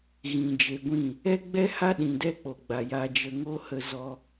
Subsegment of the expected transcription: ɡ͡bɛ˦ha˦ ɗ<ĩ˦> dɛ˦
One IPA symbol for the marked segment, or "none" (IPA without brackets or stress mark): ĩ˨